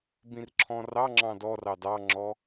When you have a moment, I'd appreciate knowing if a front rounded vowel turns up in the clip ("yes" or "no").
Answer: no